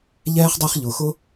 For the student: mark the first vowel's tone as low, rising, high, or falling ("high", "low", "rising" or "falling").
high